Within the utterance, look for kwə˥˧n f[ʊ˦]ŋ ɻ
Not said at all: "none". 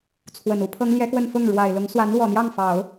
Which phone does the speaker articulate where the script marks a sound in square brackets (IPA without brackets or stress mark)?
ʊ˥˩